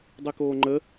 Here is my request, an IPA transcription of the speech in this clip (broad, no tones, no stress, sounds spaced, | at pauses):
dˤ i k oː ŋ͡ǃ ə